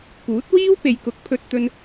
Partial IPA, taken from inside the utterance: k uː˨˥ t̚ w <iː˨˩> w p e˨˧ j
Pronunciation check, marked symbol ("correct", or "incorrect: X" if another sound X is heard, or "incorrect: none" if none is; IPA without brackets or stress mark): incorrect: iː˥